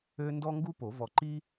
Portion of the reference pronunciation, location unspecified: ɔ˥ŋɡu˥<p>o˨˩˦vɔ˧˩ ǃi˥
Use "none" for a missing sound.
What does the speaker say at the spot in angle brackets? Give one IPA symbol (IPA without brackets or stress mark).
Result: p